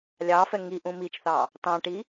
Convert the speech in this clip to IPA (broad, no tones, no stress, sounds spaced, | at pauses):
lʲ ɑ f ɛ ŋ i ʔ ũ m i t͡ʃ θ ɑ | t ɑ̃ ʈ i